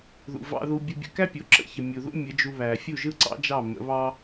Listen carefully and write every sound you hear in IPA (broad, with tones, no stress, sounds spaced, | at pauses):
ð ṵ˨ v ɑ̰˧ ð u˧ bʲ ɯ˧ bʲ ə̰˧ k æ˦ pʲ o˨ ǁ ə̰˧ ç ə˨ mʲ u˨ ð ṵ˦ mʲ ə˨˦ d͡ʒ u˧ β æ˨ fʲ u˦˨ ʒ ɯ˦ ǀ ɑ̰˦ d͡ʒ ɑ˦˨ m ə̰˨˦ β ɑ˦